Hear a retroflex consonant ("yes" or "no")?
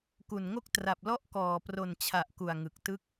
no